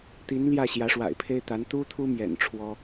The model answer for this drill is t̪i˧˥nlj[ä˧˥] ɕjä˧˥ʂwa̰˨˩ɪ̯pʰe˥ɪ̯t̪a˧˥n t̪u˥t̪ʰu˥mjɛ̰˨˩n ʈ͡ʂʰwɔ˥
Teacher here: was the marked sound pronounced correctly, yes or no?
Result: no